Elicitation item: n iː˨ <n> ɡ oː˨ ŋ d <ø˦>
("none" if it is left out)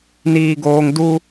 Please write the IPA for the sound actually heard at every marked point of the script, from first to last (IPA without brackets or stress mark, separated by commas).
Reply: none, u˦